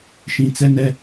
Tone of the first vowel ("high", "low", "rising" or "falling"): low